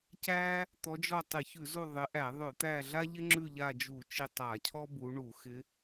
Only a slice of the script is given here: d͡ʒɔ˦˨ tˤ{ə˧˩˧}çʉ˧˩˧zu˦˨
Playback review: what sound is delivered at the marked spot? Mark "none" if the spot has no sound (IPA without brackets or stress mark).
ɪ˧˩˧